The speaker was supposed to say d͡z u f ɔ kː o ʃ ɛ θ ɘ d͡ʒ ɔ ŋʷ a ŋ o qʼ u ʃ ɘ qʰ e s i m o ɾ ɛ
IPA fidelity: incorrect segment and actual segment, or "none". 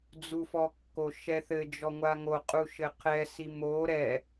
e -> ɛ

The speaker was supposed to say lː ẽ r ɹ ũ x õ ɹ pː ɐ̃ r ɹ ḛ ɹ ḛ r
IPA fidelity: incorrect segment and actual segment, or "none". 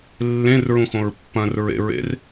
none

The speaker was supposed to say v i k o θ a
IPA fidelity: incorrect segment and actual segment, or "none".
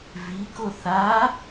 none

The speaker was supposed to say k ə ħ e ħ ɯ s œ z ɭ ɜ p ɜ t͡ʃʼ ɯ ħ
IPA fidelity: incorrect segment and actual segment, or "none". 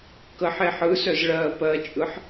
none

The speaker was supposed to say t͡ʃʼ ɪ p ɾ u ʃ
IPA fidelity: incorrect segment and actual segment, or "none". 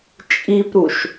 ɪ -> i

